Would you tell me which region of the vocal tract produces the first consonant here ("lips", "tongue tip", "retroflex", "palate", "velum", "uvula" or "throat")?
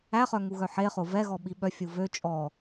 uvula